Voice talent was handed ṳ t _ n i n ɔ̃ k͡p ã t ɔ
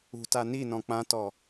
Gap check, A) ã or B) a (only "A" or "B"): B